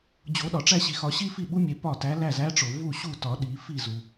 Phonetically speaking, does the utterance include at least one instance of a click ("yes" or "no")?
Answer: no